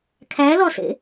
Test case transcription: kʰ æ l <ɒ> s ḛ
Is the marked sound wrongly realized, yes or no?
no